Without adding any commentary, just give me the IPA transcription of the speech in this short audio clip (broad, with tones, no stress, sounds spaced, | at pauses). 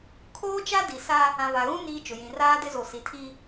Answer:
kʰ oː˦ t͡ʃ a˦ d i˨ s a˦ | ã˨ v a˨ ɣ ũ˦ n iː˦ t͡ʃ ʊ˨ j ĩ˨ r aː˦ d ɪ˦ z o˨ s i˨ tʰ i˦